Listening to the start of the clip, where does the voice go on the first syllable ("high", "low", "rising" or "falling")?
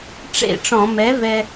falling